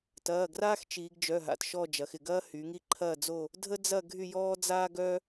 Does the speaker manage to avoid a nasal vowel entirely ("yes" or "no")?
yes